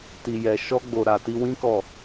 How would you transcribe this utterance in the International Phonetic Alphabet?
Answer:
t i˧ j ɛ˧ ʃ ɔ˦ ɡ͡b o˧ ɾ a˨ t i˧ w ĩ˦ k ɔ˦˨

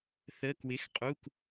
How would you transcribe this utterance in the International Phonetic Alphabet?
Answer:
θ ə˩˧˩ k w ɪ˩˧˩ x qʼ u˩˧˩ k

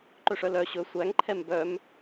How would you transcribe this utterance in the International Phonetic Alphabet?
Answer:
ǃ ɵ ʂ œ l œ ɕ ɵ sʷ æ ŋ ǃʰ ɛ m b œ m

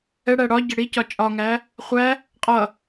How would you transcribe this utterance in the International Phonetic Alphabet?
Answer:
ɛ ɽ æ ɽ ɒ ɟ ə ɽ i c ɒ t͡ʃʼ ɒ ŋ æ | χʷ æ | qʼ ʌ

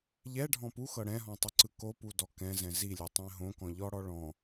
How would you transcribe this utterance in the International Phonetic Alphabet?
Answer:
ʎ ɛ ɖʱ ɔ̃ p u x ɤ ɽ ɛ̃ ɦ ɔ̃ tˤ ɯ ǀ ɯ k o p u d ɔ k ɛ̃ z ɛ̃ z i lʲ ɛ tˤ ɛ̃ ɦ õ k ɔ̃ ʎ ɔ ɽ ɔ ɭ ɔ̃

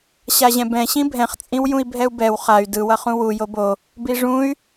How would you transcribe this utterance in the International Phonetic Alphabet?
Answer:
ɕ a ʑ ɛ̃ b ɛ̃ ɕ ĩ bʱ ɛ̃ χ t͡sʼ ĩ w j ũ i̯ bʱ ɛ u̯ b ɛ w χ a y̯ d ɯ w ʌ χ ũ w u j o b o | b i ʐ ũ y̯

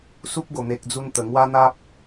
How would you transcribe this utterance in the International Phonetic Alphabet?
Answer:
s u˦ p̚ ɡ o˨˩ n̪ e˨ k̚ d͡z u˧ n t̪ ə˨˩ ŋ w a˦ n̪ a˦ p̚

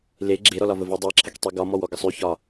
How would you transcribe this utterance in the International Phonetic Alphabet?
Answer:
l e ɡ͡ǁ e ɾ ɔ l ɒ v ə v i dˤ i ǁʰ ə k tˤ i ɡ ɒ m ɔ w ɔ ɡ ə sˤ y ç ɒ

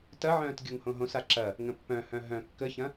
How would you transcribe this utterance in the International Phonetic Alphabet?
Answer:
t ɐ ʕ œ̃ː t ɡʲ o ŋ h õ ɦ õ s a ǁ ɐ | ŋ ə̃ pː œ̃ h œ̃ ɦ œ̃ kː ə ç ɐ̃

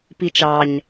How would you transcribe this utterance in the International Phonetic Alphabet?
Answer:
p i t͡ʃ ɑ ɲ

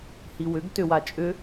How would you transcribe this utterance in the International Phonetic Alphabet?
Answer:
h i w ʏ ɡ t ʏ w a t͡ʃʼ ʏ

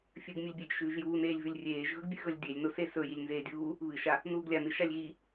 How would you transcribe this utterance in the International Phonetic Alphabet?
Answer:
fʲ ɨ ɡ mʲ ɨ lʲ bʲ e ɡ ʃ ʉː ʒ j uː n eː lʲ v ʉ lʲ rʲ eː ʒ ɣ ɵ ɡ bʲ ʉ ɣ ɵ lʲ dʲ e lʲ n o s e s ɵ j i lʲ n z eː dʲ uː | β ɨ ʃ a | n uː ɡ lʲ a n ɨ ʃ a lʲ ɣ i

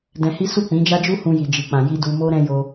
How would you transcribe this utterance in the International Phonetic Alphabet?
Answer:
d ɛ̃˧ h i˦ s u˦˨ k͡p ĩ˨˦ d͡ʒ a˦ d͡ʒ u˦ h ũ˧ j i˨ d͡ʒ i˨ k͡p ã˨ j i˧ d u˧ m o˦ ɾ ɛ̃˦ j o˧

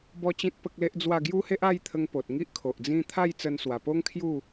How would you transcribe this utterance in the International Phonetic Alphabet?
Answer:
b ɔ˦ t͡ɕ ĩ˦ t̚ p ə˦ k̚ l e˦ ʔ d͡z w a˥˧ ɡ j u˦ h e˦ ʔ a˥˧ j t̪ʰ ə˧ ŋ p o˨ t̚ ŋ i˦ ʔ kʰ o˨ ʔ d͡z ĩ˦ t̪ʰ a˥˧ j t͡s ə˧ n s w a˨˩ p o˦ ŋ kʰ j u˥˧

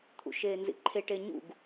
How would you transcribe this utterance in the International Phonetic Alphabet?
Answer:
t̪ʰ ṵ ʃ eː n z ḭ ǃʰ e ʈ e ɲ ṵ ɡ

